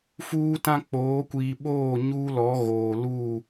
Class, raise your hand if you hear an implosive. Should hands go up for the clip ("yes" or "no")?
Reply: yes